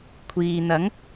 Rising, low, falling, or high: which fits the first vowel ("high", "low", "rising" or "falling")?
low